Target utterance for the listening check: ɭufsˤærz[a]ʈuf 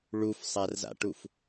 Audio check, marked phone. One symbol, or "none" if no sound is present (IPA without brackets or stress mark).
a̰